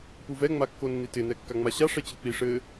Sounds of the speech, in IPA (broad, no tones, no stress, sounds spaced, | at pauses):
p u v ɛ ŋ͡m a kː o nː i t ɪ n ɛ kː a ŋ͡m a ɕ a ʂ ɛ t͡ɕ ɪ k͡p i ʂ ɘ